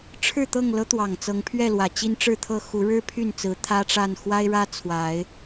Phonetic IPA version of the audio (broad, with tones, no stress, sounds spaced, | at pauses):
ʈ͡ʂʰ ɻ̩˥˨ t̪ ɤ˥˨ ŋ l ɤ˦ t̪ w ɑ˨˩ ŋ t͡s ɤ˨˦ ŋ pʰ ɥ ɛ˥˨ l w ä˨˩ t͡ɕ i˦ n ʈ͡ʂ ɻ̩˥˨ t̪ʰ ɤ˥˨ x u˨˦ ɻ ɻ̩˦ pʰ y˥˨ n t͡s ɹ̩˨˦ t̪ʰ ä˦ ʈ͡ʂ a˥˨ n x w a˦ ɪ̯ ɻ ä˦ t͡sʰ w a˨˦ ɪ̯